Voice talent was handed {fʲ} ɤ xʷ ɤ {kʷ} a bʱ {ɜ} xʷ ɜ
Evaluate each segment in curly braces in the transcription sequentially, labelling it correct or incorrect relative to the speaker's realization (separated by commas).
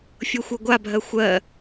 correct, incorrect, correct